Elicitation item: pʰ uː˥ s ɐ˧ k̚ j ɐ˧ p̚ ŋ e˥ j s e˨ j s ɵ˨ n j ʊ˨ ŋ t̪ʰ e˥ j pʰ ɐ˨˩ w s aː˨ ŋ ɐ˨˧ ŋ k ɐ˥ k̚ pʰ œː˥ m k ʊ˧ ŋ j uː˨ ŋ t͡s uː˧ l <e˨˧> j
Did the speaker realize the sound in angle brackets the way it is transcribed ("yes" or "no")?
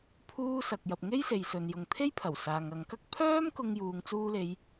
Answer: yes